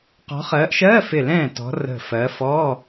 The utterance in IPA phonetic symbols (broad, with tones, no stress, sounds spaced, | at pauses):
q ɔ̤˨˦ χ ɜː˨˦ ʔ ʃ ɜː˧˥˧ f ɪ˧˩ l ɛ̃ː˥˩ t ɔ̤˨˦ r ə̤˧˩ f ɜ˨˦ f ɔː˧˥˧